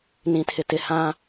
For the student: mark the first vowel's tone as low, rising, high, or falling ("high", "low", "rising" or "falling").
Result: low